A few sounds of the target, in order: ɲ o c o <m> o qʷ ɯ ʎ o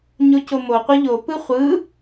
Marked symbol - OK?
yes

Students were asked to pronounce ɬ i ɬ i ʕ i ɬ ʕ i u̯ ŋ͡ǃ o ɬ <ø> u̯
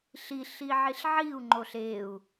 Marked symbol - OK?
no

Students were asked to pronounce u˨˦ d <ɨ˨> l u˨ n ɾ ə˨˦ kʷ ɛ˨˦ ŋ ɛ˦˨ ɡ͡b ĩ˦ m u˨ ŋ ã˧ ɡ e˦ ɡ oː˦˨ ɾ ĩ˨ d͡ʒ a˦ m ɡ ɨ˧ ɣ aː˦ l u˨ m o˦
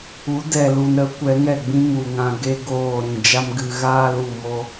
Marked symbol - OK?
no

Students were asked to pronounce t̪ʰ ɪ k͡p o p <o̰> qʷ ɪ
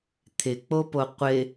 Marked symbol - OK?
no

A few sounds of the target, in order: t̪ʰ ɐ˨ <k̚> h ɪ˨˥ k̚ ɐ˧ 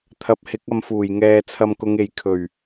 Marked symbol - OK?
no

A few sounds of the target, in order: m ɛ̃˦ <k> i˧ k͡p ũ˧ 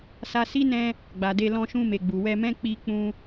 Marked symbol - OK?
no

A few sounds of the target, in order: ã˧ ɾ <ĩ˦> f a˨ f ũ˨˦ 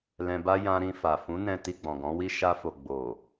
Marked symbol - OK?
no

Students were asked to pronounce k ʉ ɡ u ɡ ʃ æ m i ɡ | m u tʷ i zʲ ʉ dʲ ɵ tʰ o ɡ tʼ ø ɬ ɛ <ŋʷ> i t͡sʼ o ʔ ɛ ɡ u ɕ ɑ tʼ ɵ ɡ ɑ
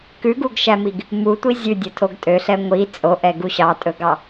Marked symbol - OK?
yes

